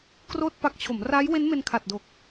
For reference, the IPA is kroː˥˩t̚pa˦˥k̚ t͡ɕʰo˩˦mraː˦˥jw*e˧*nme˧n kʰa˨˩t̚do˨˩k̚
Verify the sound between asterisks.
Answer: incorrect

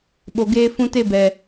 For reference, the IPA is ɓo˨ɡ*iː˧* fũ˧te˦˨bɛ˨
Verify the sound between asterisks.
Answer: incorrect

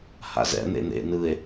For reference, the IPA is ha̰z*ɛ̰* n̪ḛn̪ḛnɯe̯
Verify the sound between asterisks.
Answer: correct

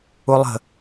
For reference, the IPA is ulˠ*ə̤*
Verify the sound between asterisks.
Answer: correct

